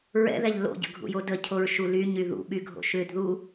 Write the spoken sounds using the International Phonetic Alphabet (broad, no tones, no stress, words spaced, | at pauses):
ɹɛ̰ðɛʎ lo̰ɟə̰ɡʱṵjo dəcʰoɹʃu lyɲy ðṵɓyɡʱo̰ ʃʏdðu